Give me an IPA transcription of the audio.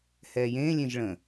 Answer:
h ɛː j ẽː lʲ ẽ ʒ ɭ ə̃

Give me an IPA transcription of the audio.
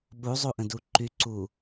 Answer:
ɓ u zˤ u ʔ ə̃ d u ǃ y ǀ u

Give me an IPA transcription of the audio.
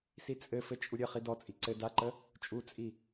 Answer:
s i t͡sʼ ɘ f ɘ t͡ʃʼ u ɾʲ ɘ χ i d ɔ t͡sʼ i ǀ ɘ d a ǃ ə | t͡ʃʼ u t͡sʼ i

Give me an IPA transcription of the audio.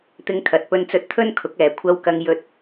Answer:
t̪ ɪ˧ ŋ kʰ ɐ˨ t̚ p ɵ˧ n t͡s ɵ˧ t̚ t̪ʰ ɵ˥ n kʰ ʊ˨˥ k̚ ɛː˨ kʷʰ ɐ˧ w k ɐ˧ ŋ j ɵ˥ t̚

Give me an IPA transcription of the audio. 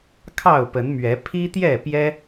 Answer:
kʰ ɑ˥˨ ʊ̯ p ə˨˦ n m ɥ ɛ˨˦ pʰ i˦ t̪ j ɛ˥˨ p j ɛ˦

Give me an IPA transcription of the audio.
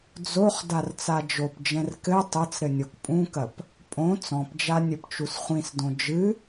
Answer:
d͡z o χ d a r t͡s a d͡ʒ o p d͡ʒ ɛ̃ r k ɘ tˤ ɐ t͡s ɾ ɘ nʲ o k pʼ ũ k ɐ p | pʼ õ t͡s ɔ̃ p d͡ʒ a nʲ ɘ p t͡ʃ u s χʷ ĩ s d õ d͡ʒ ɨ

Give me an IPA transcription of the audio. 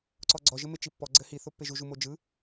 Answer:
ǀ ɔ ɡ͡ǀ ɔ ʒ ɘ m e t͡ʃ i pː ɔ ɡ͡ǀ ɘ h i θ o pː e ʒ u ʒ u m o d͡ʒ ɯ

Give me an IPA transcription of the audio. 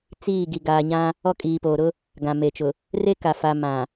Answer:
t͡s iː˦˨ ɡ i˨ ɡ aː˨ ɲ ã˦ | ɔ˦˨ kʼ iː˨ p oː˨ ɾ ʊ˦ | ɡ ã˨ m e˨ t͡ʃ ʊ˨ | r e˦ k a˨ f a˨ m ã˨

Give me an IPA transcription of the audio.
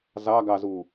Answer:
z ɑ ɡ ɑ z u

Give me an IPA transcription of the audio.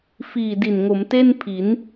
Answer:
f iː˨˩ d i˨˩ n ŋ o˩˦ m t e˥˩ n pʰ i˩˦ n

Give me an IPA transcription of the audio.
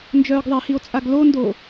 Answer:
n d͡ʒ œː ɡ ðˤ e h i o̯ t͡sʼ a ɡ l o n d o

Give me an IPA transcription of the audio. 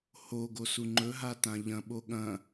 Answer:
h o ɡ o s u ŋ͡ǃ ɵ ɦ a t ã ʎ ɐ̃ ɓ o ɠ ɐ̃

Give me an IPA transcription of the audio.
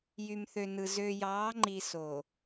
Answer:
j y˨ m θ ø˨ n ɯ˨ z ø˨ j ɑː˨˦ ŋ͡ǃ i˨ s o˨

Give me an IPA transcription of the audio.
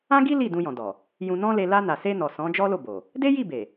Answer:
ã˦ ɡ i˦ l i˦˨ d ũ˧ j ɔ̃˨ d ɔ˨ | j ũ˧ n ɔ̃˦ l e˧ l a˧ n a˨ s e˧ n ɔ˨ s ɔ̃˨˦ d͡ʒ ɔ˦ l o˦˨ b o˨ | d e˦ j i˦˨ b e˨

